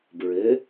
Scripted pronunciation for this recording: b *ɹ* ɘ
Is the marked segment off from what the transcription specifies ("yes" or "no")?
no